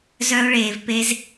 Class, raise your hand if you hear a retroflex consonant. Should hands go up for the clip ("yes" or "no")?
yes